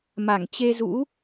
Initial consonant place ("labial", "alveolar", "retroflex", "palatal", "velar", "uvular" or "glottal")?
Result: labial